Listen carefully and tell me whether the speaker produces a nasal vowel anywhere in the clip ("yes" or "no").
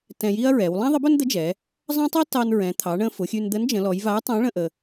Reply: yes